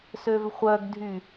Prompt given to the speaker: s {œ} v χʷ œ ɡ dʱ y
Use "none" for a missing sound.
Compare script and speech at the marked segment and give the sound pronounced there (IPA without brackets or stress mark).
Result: ø